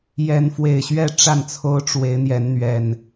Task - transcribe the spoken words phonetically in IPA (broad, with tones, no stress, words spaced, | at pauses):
jɛ˨˦nfwe˨˩ɪ̯ɕɥɛ˥˨ ʈ͡ʂa˥˨nt͡sʰo˦ʊ̯ʈ͡ʂwe˨˦ɪ̯ n̪jɛ˨˦nn̪ɥɛ˨˩n